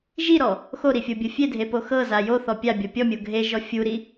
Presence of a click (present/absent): absent